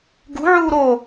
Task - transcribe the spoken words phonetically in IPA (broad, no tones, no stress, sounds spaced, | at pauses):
ɡ ṳ ʕ uː ɾ o